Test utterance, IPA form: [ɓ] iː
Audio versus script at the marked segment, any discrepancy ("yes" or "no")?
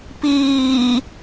yes